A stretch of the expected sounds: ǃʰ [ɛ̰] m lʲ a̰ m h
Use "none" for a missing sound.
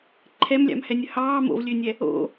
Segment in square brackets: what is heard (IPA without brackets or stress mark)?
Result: ɛ